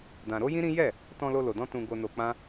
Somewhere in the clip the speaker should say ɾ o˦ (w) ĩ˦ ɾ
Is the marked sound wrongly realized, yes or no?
yes